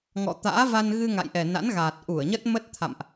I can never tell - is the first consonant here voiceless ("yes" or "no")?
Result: no